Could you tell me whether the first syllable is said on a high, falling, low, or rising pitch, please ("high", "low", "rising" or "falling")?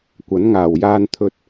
rising